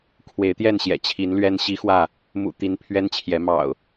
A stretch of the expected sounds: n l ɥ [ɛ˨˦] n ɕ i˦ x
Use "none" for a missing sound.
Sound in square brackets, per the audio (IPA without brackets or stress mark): ɛ˦